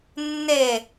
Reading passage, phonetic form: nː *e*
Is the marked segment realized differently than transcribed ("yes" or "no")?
no